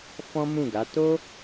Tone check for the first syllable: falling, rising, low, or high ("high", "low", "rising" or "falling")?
high